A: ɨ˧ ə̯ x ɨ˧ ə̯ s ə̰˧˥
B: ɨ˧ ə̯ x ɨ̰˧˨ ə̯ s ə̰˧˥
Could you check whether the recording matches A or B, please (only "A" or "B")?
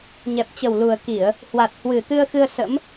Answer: A